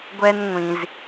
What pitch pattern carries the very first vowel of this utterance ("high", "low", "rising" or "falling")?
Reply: high